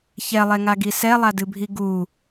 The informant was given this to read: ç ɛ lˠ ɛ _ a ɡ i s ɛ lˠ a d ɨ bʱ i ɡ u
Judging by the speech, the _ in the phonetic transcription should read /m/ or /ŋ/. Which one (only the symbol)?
ŋ